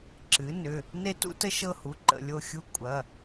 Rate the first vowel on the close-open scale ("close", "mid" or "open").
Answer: close